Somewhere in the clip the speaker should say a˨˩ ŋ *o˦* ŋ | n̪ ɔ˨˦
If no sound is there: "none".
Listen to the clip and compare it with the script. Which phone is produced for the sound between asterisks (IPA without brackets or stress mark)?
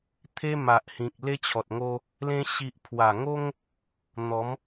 o˦